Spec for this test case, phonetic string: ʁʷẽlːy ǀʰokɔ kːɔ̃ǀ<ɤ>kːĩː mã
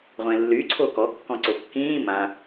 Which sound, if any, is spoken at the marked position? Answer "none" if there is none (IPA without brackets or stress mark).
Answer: o